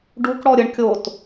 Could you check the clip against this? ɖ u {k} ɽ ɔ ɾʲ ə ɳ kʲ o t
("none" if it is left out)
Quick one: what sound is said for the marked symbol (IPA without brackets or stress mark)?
k